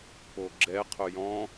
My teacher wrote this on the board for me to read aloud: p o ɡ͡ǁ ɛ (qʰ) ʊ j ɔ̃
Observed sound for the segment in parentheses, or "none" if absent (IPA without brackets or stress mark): qʰ